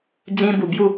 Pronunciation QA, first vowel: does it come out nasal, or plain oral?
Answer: nasal